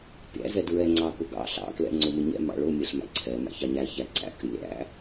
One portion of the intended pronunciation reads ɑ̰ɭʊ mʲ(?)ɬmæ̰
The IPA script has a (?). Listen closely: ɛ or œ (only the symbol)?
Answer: ɛ